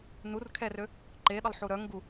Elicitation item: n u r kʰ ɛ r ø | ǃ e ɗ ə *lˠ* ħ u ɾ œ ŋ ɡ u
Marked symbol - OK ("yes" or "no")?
yes